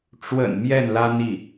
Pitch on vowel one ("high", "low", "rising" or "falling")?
low